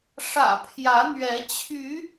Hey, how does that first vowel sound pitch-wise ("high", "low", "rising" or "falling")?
low